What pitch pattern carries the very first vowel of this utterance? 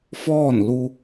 falling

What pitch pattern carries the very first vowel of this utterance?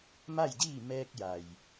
falling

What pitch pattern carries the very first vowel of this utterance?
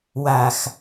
low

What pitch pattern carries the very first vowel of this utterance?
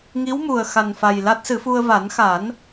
rising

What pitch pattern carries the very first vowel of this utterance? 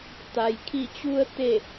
low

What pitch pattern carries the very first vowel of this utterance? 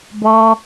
high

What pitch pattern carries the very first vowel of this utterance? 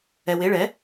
low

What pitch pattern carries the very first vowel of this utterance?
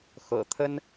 low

